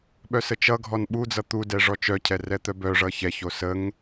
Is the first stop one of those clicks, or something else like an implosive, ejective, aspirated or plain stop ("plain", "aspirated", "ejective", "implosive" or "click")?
implosive